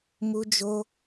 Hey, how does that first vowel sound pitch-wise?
high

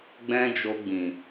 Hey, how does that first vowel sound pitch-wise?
high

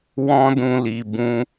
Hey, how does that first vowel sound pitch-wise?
high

